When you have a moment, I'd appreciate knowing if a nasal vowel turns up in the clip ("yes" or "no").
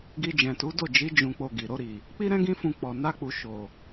yes